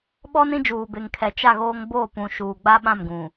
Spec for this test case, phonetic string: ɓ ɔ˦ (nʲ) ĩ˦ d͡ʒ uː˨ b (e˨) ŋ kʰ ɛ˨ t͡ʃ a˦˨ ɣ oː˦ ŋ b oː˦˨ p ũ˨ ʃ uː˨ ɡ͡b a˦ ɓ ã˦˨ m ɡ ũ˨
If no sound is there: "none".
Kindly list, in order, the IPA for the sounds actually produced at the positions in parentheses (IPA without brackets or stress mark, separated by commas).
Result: n, e˨